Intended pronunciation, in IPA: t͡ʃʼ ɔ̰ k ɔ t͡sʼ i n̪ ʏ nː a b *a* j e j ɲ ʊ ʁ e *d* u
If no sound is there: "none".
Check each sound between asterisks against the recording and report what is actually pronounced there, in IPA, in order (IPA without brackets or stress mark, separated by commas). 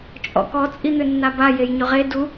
a, d